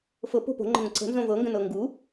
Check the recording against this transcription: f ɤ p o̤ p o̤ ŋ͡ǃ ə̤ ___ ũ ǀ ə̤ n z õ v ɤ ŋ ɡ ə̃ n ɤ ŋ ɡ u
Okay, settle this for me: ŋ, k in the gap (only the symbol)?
ŋ